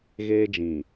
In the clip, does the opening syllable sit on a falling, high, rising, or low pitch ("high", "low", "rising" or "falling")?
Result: high